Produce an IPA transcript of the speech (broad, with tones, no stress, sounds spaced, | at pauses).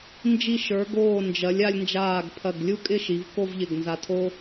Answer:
n d͡ʒ i˧˩ ʃ ə˞˩˧ ɡ oː˧˩ n d͡ʒ ɐ˩˧ lʲ a˧ lʲ n d͡ʒ aː˧˩ ɡ pʰ ɐ˧˩ ɡ lʲ u˥ kʼ ɪ˥˧ ʃ i˩˧ v k o˥˧ v ʎ ɪ˧˩ ɡ n z a˧ tʰ o˥